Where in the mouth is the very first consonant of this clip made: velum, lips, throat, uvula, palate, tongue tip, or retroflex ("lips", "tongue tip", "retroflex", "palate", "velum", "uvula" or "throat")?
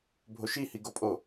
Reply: lips